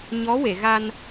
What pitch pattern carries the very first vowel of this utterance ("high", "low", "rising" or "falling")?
rising